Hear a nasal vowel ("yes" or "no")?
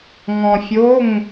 yes